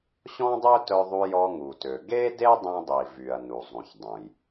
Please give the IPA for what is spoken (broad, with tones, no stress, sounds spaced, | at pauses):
ɕ ɔ̃˥ dˤ ø˥ t œ˧ ðˤ u˧ j ɔ˧ ŋ u˩ t ø˩ ɡ e˥ d e˥ dˤ ẽ˧ dˤ i˩ v y˩ ɐ̯ n u˩ zˤ ũ˩ ç dˤ ũ˩ j